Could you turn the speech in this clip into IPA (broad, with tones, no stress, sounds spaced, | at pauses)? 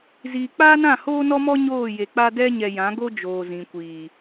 z iː˨ k͡p aː˦ n ã˦˨ h oː˦ n ɔ˦ m ɔ˦ ɲ oː˦˨ j e˨ k͡p a˦ d ɛ˦ ɲ ɛ˨ j ã˨˦ ɡ o˦ d͡ʒ oː˨ z ĩ˨ kʷ iː˨